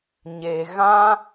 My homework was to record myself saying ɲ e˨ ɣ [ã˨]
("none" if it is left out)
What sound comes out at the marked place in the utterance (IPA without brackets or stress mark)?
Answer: ã˦